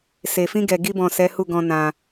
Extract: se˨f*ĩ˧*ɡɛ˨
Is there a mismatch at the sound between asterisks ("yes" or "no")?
no